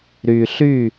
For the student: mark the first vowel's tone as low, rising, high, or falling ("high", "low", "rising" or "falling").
low